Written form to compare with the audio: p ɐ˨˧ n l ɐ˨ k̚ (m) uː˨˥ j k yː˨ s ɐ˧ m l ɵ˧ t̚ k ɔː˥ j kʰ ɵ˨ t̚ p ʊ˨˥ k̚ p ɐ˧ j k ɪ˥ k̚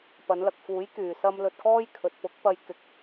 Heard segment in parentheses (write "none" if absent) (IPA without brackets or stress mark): f